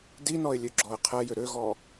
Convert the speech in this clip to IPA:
d i n ɔ ɪ̯ lʲ ø ɡ͡ǁ ɔ ɪ̯ qʰ ɛ j ʏ ɾ ø ɣ ɔ

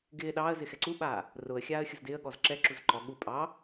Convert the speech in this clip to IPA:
ɡ ɪː ɗ ɑː ə̯ z ɪ x ɛ ǀ u ɓ aː | r ʊ ə̯ xʲ aː ə̯ xʲ ʊ z d ɪː ə̯ ɠ ɔ z ǁ ɛ ǁ u z ǃ ɔ ɠ u pʼ ɑ

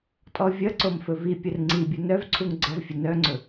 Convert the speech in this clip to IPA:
tʼ ɔ vʲ ʌ ǀ o m f ɵ v i pʲ ə r ŋ͡ǀ i bʲ u n œ v ǀʰ u ŋ ɡ͡ǀ ʌ v fʲ ə n œ ŋ͡ǀ ɵ

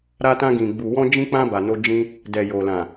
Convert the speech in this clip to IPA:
ɾ a˧ t ã˧ ɡ ĩ˨ ɡ͡b u˨ w ɔ̃˧ d͡ʒ ĩ˧ k͡p ã˧ b a˨ n o˧ d͡ʒ ĩ˧ | d ɛ˨ j o˨ l ã˨

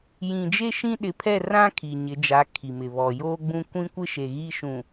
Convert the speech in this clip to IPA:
j ĩ˨ d͡ʒ e˦ ʃ ĩ˦ ɗ ɪ˨˦ pʰ ɛ˦˨ r ã˦ kʰ i˨ ɲ ɪ˨˦ d͡ʒ a˨˦ kʰ i˨ m ɪ˨ β ɔ˨ j oː˦ ɡ͡b ũ˦ kʷ ĩ˦ kʷ ɪ˦ ʃ e˨ ɣ i˦ ʃ ũ˨

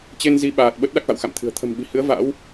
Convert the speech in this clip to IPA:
t͡ɕ e˧ n z i˨˦ ɓ aː˨˩ t̚ ɓ ə˦˥ t̚ ɗ a˦˥ k̚ v a̰˧˨ w x a̰˧˨ m t̪ʰ ɨ̤˨˩ ə̯ t̪ʰ ə̤˨˩ m ɓ i̤˨˩ h ɨ˨˦ ə̯ v a̰˧˥ w

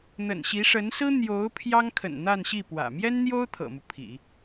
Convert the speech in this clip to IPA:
n̪ ə̰˨˩ n ɕ i˧˥ ʂ ə˧˥ n s ɹ̩˥ n̪ j o˧˥ ʊ̯ pʰ j ɑ˥ ŋ kʰ ə̰˨˩ n n̪ a˥˧ n ɕ i˥˩ p w ä̰˨˩ m j ɛ˥ n n̪ j o˥ ʊ̯ t̪ʰ ɤ̰˨˩ m u˦ pʰ ḭ˨˩˦

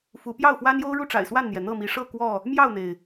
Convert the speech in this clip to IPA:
f u˨˦ p j ɑ˥˨ ʊ̯ f w a˦ n j o˦ ʊ̯ ɻ u˥˨ ʈ͡ʂ a̰˨˩ ɪ̯ s w a˥˨ n n̪ j ɛ˩ n̪ ɤ˥˨ m i˨˦ ʂ ɤ˥˨ k w ɔ˥˨ | m j ɑ˥˨ ʊ̯ n̪ e˩ ɪ̯

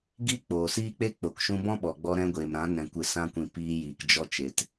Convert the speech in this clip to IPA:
ɡ i˦ k͡p oː˨ s iː˦ k͡p e˦ k͡p o˨ k ʃ ũ˧ b ɔ̃˦ ɓ ɔ˨ ɡ͡b ɔ˧ ɾ ɛ̃˧ ɡʷ eː˨ m ɾ ã˨˦ n ɛ̃˨ kʷ ɨ˨ s ã˧ kʷ ĩ˨ p iː˧ j iː˨ k d͡ʒ ɔ˦ t͡ʃ e˧ t

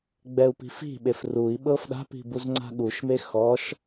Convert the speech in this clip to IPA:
ɡ͡b ɛ u̯ p i̤ f i̤ ɓ e f r u i̯ ɓ ɤ f ɗ a̤ p i̤ b u z ŋ͡ǀ a̤ ɠ u ʃ m e x ɔ ʃ

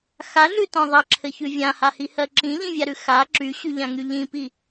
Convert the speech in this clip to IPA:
x a ɮ ʉ t ɔ̃ ðˤ ɜ ǁʰ ɘ ç ʉ vʲ ã h a h i h ɜ ǁ ĩ ʎ ĩ vʲ a ɾ ʉ x a ǁ y ɕ y ʎ ã ŋ y ʎ ĩ p i

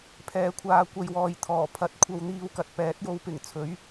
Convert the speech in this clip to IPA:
pʰ ɛː˨˥ kʷʰ aː˧ kʷ ɐ˧ j w ɔː˨ j t̪ʰ ɔː˨˩ pʰ ɐ˨ t̚ kʷʰ ɐ˧ w n̪ iː˧ w k ɐ˨ t̚ p ɛː˨˥ t̚ j o˨˧ w p ɪ˨˩ ŋ t͡sʰ ɵ˨˥ ɥ

